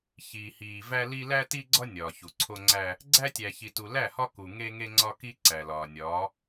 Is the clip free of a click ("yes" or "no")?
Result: no